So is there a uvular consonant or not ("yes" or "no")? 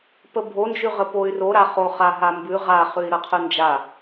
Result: yes